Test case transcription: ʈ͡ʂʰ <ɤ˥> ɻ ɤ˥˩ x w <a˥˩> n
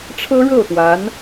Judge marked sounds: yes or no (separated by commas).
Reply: yes, no